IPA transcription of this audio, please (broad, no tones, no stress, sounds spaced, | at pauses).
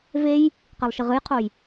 v e j | q e lˠ ʃ i ʁ ɨ j qʰ o j